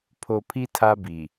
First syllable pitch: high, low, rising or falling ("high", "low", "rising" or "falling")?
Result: low